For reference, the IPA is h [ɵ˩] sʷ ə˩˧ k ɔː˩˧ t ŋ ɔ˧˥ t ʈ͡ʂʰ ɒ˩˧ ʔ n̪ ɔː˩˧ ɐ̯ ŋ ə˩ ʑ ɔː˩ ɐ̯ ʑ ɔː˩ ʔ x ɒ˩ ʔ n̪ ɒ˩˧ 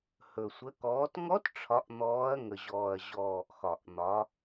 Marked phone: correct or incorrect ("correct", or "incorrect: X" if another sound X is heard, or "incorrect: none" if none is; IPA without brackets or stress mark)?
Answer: correct